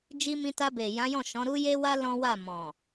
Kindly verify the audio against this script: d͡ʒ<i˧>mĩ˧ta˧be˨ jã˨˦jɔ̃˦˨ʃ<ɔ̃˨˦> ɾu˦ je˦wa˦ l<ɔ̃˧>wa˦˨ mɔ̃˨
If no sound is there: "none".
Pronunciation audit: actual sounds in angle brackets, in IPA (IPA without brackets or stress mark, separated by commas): i˧, ɔ̃˨˦, ɔ̃˦